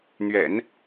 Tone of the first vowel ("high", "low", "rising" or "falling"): low